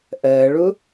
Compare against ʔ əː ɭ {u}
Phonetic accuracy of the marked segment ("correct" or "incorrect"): correct